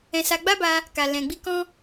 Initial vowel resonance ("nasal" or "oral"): nasal